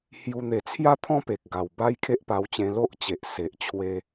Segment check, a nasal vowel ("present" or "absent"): present